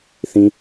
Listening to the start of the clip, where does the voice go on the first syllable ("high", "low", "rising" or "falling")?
high